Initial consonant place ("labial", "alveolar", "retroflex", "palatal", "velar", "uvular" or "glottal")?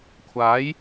velar